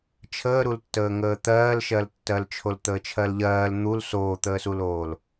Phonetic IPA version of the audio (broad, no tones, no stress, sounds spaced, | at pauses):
t͡ʃʰ əː ɾ u l tː əː ŋ əː t̪ ɜː l ʃ ɜ l tː ɜ l t͡ʃʰ o l t̪ əː t͡ʃʰ ɜ l ʎ ɜː l n̪ u l s oː t̪ əː s u l oː l